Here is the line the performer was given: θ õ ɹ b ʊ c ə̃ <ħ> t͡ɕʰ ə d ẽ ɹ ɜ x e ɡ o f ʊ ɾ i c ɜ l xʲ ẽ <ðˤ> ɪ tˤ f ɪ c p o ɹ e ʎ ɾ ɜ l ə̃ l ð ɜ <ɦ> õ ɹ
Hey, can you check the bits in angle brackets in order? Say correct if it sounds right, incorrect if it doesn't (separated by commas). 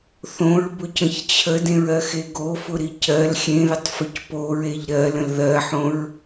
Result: incorrect, incorrect, incorrect